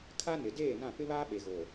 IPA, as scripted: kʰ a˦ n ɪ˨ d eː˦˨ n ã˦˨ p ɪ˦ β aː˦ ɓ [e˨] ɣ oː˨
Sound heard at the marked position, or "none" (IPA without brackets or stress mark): e˨